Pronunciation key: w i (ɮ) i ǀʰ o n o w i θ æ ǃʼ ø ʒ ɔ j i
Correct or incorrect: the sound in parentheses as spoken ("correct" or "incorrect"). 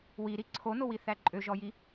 incorrect